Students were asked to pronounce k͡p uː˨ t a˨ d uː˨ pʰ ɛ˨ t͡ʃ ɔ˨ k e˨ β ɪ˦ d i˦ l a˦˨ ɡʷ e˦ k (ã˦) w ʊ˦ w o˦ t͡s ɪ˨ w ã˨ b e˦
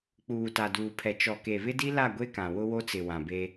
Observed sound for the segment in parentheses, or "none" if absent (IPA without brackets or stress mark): ã˨